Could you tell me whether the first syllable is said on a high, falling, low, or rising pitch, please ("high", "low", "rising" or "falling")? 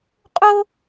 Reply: high